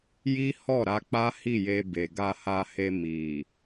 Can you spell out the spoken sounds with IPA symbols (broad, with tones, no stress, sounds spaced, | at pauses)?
j i˦ h ɔ˦˨ ɾ a˧ k͡p a˦ h i˦˨ j e˧ b e˨ ɡ a˧ h a˧ h e˧ m i˨